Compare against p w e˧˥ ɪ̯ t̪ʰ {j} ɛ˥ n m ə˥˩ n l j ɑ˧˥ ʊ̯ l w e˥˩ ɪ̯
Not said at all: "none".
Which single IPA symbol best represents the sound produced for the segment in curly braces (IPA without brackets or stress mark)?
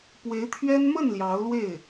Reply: ɥ